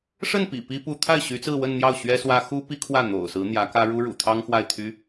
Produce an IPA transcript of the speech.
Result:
ʂ ə˥˩ n p ḭ˨˩ p i˥ p u˥ t̪ʰ a˥˩ ɪ̯ ɕ y˧˥ t͡s ɹ̩˥˧ w ə˥˧ n n̪ j ɑ˥˩ ʊ̯ ɕ ɥ ɛ˥ s w ä˥ x u˥ p i˥ kʰ w ä˥˩ n̪ o̰˨˩ ʊ̯ s ɹ̩˧˥ n̪ j ä˧˥ k ä˥ ɻ u˥ ɻ ṵ˨˩ t̪ʰ ɑ˥ ŋ x w a˥˩ ɪ̯ t̪ʰ y˥

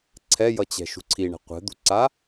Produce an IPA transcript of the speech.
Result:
ǀʰ ɛ j ʌ t͡ɕ ɛ̤ ʃ ṳ ǀʰ i ɳ ɛ̤ qʷ ɛ̤ d̪ ṳ ǀ a

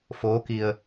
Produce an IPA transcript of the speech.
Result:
f oː˧˥ k i˧ ə̯

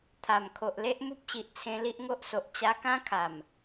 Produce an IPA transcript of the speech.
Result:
t̪ʰ a˨˩ m kʰ o˨ ʔ l e˦ ʔ m u˦ p̚ ɕ i˨ ʔ t͡sʰ ẽ˧ l i˦ ʔ ŋ o˦ ʔ s o˨ ʔ t͡ɕ a˧ k ã˦ kʰ a˨˩ m

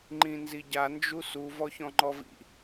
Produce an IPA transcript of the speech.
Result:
ŋ͡ǃ ĩ n z i ɟ a n d͡ʒ u s u v ɔ ç ɔ̃ ŋ͡ǃ ɔ v ḭ

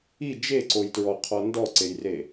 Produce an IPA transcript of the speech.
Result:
i d͡ʒ e ǀ o j t ɹ ɔ qʰ ɔ n d ɔ ǀ e j r e

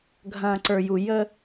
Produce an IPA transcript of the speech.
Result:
ɡʱ ɐ̃ː˨ ǀ ə˞˨ j u˨ j ə˦

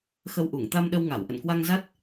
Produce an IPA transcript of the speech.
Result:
x ə˧ w ʔ u˧˩ ŋ t̪ a˧ m ɗ ə˧ w ŋ a˧˩ w ʔ ə̰˧˨ n k w a˧ ŋ z a˦˥ t̚

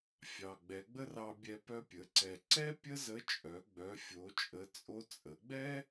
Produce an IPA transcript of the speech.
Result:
fʲ ɑ˩ ɡ͡b ɛ˩˧ ɡ͡b ə˥ r ɑ˧ bʲ ɛ˧ p œ˧ pʲ ə˩˧ ǀ ɛ˩ ǀ ɛ˥ pʲ ə˥ z ə˧˥ t͡ʃʼ œ˩˧ ɡ͡b œ˩˧ fʲ o˩˧ t͡ʃʼ ə˩˧ t͡sʼ o˧ t͡sʼ ə˩˧ ɡ͡b ɛ˥

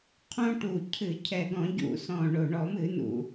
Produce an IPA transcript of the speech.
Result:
qʰ õ˦ ʈ u˨˩ cʰ ɨ˧˩˧ cʰ ɛ˨˩ ɡ ɔ̃˧˩˧ ɟ ṵ˧˩˧ s ɔ̃˨˩ ɳ o˨˩ ɳ ɔ˧˩˧ m ɨ˧˩˧ n ṵ˨˩

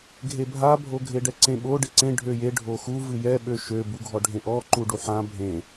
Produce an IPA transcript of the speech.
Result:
ɡʱ e bʱ a bʱ o ɡʱ e ɖ ɛ ǀ ẽ ɓ o ɖ e ǀ ẽ ɖʱ ø j e ɖʱ o x u v ɨ j ɛ ɓ ø ʃ ø b u ɡʱ ɔ ɖʱ ẽ ʔ ɔ ǃ u ɖ u ħ ã bʱ ẽ

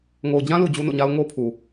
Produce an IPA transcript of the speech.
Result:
ŋ o˨ ʊ̯ d͡ʑ ã˦ l u˨ d͡ʑ u˦ n o̰˦˨ ɲ a˦ ʊ̯ ŋ o˦ pʰ u˨

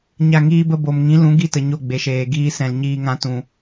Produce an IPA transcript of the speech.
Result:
ɲ a˦˨ ŋ iː˦ b ə˦ b o˨ m ŋ ĩ˨˦ l ũ˨˦ ɡ i˦˨ t ə˨ ɲ o˦˨ ɡ͡b e˨ ʃ eː˨ ɡ iː˦ s ɛ̃˨ l ɲ iː˧ ŋ ã˧ t ũ˨

